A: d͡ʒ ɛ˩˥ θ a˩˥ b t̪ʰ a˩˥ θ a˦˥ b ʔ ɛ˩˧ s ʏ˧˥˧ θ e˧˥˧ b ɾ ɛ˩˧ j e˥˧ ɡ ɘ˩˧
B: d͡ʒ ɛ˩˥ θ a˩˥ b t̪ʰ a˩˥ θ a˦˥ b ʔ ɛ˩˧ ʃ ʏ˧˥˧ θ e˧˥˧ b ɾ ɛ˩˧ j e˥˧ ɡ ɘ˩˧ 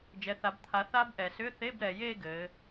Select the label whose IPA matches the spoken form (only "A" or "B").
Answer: A